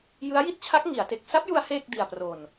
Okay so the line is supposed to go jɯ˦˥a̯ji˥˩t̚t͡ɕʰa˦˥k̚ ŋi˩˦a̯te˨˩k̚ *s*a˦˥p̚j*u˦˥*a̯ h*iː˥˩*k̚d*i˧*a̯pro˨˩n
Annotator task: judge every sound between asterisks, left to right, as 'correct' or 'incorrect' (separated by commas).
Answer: correct, incorrect, incorrect, incorrect